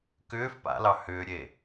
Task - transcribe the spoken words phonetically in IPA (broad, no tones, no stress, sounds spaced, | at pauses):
k ʏː f p a̰ l ɑ h ʏː ɾʲ e